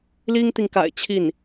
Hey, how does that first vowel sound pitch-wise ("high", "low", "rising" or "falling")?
high